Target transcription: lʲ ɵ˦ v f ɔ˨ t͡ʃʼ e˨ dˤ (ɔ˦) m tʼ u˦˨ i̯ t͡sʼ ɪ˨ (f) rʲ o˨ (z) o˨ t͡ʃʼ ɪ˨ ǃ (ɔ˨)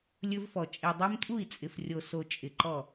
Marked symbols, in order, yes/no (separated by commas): no, yes, no, no